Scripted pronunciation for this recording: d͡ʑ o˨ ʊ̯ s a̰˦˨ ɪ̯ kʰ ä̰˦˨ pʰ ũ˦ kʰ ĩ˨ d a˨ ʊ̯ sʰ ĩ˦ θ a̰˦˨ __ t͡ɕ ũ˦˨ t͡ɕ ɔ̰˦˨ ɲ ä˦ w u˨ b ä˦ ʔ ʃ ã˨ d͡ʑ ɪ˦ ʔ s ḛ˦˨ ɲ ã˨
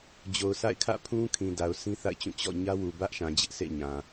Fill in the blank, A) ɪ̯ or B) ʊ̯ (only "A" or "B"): A